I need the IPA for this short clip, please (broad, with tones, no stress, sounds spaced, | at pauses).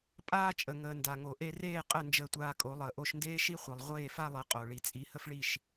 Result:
pʼ aː˥ t͡ʃʼ ə˩ ŋ əː˩ n d a˩ ŋ o˩ ʔ e˧ r eː˥˩ qʼ ə˥˩ n d͡ʒ əː˧ tʷ aː˧ kʼ o˩˥ lˠ əː˩ ʔ o˧ ʃ n d eː˥ ʃ i˥ χʷ i˩ lˠ ʁʷ eː˥˩ f a˥ lˠ ɘ˩˥ qʼ o˩ ɭ i˩ t͡sʼ i˩˥ h ə˥ f ɭ i˥˩ ʃ